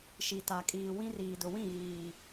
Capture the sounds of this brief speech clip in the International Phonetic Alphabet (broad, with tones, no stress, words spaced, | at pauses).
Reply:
ʃi˨ta˨kʼiː˨ wĩ˦r iː˨dʊ˨wĩ˦˨ ɣiː˨